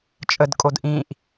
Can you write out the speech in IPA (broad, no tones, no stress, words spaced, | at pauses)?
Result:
t͡ʃʼədkʼod ʔĩʔ